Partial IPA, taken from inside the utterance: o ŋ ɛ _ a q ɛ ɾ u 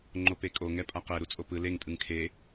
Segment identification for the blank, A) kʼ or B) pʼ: B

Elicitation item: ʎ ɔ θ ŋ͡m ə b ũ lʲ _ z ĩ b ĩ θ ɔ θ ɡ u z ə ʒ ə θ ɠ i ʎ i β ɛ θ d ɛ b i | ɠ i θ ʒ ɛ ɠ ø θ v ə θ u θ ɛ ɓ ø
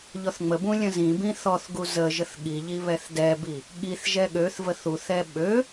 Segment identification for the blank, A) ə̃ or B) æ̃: A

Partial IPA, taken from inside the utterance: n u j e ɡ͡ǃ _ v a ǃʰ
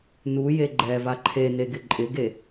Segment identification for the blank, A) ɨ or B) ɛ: B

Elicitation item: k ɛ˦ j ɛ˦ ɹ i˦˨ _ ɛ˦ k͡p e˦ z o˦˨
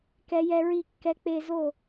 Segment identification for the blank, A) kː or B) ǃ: A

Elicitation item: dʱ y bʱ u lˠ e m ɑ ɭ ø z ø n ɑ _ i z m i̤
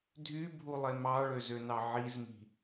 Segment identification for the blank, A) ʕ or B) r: A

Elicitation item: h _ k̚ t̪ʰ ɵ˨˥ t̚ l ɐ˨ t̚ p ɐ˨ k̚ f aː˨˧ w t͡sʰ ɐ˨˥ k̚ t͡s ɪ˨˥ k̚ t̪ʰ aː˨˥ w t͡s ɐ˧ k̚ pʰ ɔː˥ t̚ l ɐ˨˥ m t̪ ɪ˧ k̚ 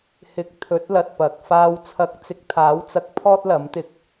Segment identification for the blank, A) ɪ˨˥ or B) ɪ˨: A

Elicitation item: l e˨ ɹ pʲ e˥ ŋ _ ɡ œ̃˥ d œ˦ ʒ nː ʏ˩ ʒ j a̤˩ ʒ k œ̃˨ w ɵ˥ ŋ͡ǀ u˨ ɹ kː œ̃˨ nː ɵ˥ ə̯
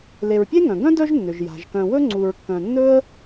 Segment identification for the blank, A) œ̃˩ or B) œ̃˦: A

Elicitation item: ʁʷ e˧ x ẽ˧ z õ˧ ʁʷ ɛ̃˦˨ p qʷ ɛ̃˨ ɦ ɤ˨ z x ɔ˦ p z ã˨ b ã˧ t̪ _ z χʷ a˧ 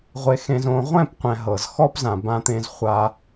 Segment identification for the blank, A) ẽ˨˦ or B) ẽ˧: B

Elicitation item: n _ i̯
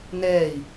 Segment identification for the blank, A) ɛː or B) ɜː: A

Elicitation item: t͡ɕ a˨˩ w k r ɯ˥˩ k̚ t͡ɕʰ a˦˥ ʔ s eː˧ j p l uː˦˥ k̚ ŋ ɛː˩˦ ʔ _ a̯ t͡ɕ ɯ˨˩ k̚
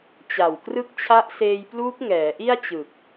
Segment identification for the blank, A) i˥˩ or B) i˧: A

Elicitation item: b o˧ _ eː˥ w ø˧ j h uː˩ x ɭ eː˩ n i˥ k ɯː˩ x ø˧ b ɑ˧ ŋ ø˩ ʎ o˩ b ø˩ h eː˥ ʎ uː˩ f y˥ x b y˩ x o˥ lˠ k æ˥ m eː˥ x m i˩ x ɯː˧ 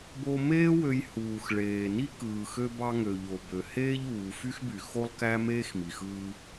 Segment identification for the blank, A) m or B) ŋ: A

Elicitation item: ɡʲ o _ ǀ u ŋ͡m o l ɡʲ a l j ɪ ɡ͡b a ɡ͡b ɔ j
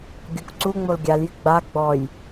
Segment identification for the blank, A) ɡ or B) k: B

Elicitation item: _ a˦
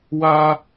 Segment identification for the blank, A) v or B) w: B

